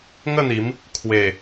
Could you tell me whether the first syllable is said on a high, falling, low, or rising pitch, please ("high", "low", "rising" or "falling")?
falling